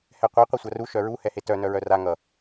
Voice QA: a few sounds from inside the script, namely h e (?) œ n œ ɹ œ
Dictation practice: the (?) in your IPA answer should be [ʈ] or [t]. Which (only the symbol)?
t